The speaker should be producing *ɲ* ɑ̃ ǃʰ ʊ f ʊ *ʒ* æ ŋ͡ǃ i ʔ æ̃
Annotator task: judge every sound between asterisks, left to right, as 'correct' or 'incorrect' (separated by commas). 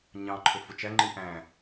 correct, incorrect